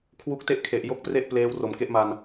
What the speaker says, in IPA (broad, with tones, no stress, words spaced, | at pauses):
kʰwu˦˥k̚te˦˥ʔkʰe˨˩ʔ jo˥˩k̚pre˥˩ʔpleː˦˥w ro˨˩mke˦˥ʔma˧n